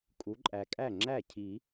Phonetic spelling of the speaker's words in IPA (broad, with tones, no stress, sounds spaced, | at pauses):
kʼ u˨˦ ǃʼ æ˨ kʼ æ˥˩ ŋ͡ǁ æ˥˩ cʰ i˨˩˦